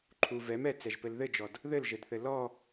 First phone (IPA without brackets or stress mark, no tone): ǃʰ